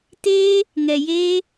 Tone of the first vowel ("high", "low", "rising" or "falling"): high